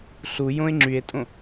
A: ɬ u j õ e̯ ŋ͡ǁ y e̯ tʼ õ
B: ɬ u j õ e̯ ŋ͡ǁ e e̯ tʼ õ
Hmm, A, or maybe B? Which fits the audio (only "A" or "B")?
A